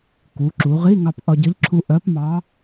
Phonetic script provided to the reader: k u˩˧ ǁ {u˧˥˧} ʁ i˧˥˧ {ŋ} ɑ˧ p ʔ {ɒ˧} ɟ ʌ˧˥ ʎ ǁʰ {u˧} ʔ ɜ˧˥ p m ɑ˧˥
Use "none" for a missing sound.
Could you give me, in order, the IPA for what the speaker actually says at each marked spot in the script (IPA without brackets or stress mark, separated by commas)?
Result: u˩˧, ŋ, ɒ˧, u˧